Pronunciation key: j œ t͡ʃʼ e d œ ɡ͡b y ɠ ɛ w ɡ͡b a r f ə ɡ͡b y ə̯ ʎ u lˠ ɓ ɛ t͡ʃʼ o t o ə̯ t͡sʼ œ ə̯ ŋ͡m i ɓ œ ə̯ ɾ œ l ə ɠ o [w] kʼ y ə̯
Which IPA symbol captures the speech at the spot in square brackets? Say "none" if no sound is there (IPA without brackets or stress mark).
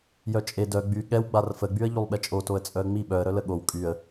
w